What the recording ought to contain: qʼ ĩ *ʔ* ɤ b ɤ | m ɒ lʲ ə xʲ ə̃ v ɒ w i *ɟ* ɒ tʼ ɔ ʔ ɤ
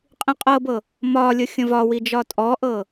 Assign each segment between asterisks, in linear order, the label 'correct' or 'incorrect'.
incorrect: qʼ, incorrect: d͡ʒ

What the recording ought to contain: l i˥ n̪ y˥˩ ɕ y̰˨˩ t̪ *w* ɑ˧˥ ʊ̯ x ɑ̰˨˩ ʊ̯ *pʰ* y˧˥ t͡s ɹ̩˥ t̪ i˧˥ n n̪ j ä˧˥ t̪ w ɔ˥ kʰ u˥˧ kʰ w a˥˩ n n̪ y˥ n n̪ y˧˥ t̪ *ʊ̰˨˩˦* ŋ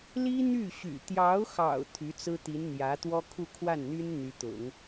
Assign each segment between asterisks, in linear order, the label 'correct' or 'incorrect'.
incorrect: j, incorrect: t̪ʰ, correct

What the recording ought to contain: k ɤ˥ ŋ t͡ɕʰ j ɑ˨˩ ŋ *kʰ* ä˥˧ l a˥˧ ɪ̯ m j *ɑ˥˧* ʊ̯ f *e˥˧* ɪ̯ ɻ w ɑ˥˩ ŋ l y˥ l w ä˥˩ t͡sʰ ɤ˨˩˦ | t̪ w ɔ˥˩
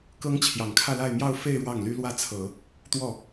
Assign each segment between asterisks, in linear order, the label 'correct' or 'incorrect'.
correct, correct, correct

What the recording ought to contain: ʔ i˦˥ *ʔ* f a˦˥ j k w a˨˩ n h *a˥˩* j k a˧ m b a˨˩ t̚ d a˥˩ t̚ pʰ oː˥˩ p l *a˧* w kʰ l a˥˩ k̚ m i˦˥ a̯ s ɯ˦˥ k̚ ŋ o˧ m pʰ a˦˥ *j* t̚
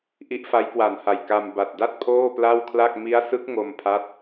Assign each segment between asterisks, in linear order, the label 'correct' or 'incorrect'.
correct, incorrect: a˨˩, incorrect: a˥˩, incorrect: none

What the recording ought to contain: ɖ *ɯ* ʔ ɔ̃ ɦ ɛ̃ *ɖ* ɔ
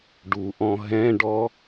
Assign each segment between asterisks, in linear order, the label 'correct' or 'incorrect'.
incorrect: u, correct

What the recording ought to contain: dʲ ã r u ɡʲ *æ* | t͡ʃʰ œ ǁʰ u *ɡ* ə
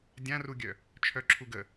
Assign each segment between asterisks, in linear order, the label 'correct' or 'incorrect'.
incorrect: œ, correct

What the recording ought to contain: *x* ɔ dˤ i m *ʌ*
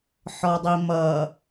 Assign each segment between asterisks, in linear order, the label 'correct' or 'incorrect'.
incorrect: ħ, correct

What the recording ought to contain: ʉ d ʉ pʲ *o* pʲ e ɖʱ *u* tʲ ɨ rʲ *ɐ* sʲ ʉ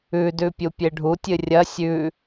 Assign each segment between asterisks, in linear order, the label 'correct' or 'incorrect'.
incorrect: u, correct, correct

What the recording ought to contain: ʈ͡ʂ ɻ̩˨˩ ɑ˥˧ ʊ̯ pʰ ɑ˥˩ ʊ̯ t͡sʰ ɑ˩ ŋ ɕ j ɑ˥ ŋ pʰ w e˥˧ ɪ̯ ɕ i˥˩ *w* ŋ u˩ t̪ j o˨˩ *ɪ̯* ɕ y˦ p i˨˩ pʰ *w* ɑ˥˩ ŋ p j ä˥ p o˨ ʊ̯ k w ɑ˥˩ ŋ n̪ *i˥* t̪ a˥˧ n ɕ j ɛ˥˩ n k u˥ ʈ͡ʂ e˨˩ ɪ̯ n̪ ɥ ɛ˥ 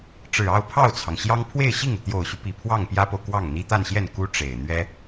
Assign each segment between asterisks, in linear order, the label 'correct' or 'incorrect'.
incorrect: none, incorrect: ʊ̯, correct, correct

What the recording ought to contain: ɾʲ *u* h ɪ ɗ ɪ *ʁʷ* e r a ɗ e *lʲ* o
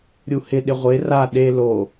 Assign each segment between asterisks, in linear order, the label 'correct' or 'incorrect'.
correct, correct, incorrect: l

